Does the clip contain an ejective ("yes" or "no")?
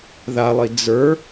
no